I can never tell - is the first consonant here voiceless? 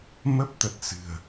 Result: no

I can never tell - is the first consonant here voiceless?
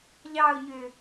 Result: no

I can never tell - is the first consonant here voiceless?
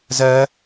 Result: no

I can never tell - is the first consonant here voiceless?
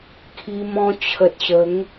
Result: yes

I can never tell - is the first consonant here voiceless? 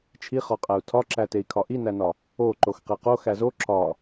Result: yes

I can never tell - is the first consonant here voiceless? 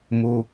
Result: no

